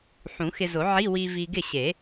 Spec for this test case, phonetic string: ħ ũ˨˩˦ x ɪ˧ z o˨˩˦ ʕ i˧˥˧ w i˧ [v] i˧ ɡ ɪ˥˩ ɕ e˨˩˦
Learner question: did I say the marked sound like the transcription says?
yes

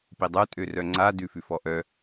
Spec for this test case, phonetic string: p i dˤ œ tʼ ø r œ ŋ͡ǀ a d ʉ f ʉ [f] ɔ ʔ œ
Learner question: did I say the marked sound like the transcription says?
yes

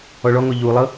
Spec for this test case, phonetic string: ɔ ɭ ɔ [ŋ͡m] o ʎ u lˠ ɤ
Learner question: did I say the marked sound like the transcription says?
no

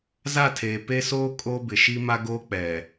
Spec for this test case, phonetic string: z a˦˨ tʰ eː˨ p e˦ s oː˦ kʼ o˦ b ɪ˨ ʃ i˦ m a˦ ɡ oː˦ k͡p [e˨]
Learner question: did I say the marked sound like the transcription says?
no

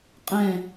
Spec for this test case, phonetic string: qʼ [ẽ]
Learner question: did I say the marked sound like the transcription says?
yes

